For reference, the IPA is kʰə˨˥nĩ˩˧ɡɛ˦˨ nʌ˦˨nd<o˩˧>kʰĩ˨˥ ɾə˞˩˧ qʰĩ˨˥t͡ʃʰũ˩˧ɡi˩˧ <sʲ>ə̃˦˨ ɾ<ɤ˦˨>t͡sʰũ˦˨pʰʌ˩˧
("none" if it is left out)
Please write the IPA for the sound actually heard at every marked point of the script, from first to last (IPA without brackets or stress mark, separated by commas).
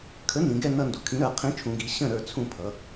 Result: u˩˧, ɕ, ə˞˦˨